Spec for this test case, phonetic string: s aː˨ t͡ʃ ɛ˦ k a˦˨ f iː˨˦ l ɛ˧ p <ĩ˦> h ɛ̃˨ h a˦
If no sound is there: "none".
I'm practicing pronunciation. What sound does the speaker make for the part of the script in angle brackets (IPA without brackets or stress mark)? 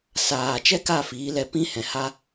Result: ĩ˦